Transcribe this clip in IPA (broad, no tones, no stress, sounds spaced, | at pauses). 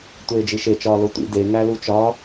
tʷ eː d͡ʒ i ʃ e t͡ʃ ɒː l o tʷ ḭ d e ŋ æ l u t͡ʃ ɒ